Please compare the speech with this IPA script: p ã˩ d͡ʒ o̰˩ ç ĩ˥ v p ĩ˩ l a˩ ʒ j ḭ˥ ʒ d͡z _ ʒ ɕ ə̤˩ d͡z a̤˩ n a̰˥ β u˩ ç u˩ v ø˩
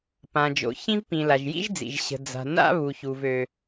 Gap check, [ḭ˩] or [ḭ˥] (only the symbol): ḭ˩